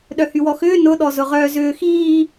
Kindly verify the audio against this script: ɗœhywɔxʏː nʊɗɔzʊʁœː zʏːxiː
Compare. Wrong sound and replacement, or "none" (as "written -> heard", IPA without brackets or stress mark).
none